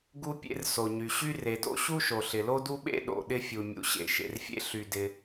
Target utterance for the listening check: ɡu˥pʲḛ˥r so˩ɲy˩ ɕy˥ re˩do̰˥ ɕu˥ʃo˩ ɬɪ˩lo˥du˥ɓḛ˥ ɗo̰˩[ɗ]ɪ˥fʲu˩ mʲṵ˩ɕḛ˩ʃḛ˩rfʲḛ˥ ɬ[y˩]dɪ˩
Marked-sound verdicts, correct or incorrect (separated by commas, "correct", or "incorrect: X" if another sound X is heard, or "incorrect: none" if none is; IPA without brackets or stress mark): correct, correct